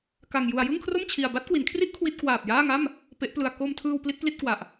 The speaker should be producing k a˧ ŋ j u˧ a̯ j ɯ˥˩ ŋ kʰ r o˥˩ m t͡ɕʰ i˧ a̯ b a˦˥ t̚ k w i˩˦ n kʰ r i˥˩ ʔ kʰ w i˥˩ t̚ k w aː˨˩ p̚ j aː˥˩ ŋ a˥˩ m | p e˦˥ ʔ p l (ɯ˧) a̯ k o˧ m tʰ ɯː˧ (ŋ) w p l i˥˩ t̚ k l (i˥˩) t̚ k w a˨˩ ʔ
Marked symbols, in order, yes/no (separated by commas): yes, no, yes